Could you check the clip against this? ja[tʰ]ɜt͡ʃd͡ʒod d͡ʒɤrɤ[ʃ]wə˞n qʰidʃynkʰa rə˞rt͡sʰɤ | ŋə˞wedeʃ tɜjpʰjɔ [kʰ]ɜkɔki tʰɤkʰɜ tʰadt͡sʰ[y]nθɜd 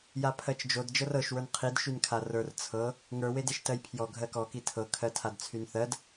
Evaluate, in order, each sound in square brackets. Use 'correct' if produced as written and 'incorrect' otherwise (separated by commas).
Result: incorrect, correct, incorrect, correct